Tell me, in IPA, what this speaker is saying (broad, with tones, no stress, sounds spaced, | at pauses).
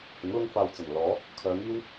h ɪ˨˥ ŋ l ʊ˥ ŋ f aː˧ w t͡s ɐ˨˩ n l ɔː˨˥ | kʰ œː˨˧ ŋ iː˥ w